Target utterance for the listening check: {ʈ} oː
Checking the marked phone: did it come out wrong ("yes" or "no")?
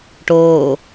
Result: no